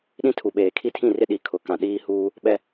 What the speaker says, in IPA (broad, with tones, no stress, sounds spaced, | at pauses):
ɗ ĩ˦ tʰ u˨ ɓ eː˨ kʰ i˦ tʰ ĩ˦˨ r ɪ˦ ɗ i˨˦ kʰ ʊ˨ k ã˨ ɗ iː˦ h uː˦ | ɓ ɛ˦